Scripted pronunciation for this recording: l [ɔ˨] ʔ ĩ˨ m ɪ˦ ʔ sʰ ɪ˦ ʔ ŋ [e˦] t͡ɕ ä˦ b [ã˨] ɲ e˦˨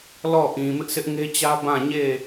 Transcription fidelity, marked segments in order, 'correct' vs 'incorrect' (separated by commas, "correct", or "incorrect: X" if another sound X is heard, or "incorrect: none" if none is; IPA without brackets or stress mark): incorrect: ɔ˦˨, correct, incorrect: ã˦˨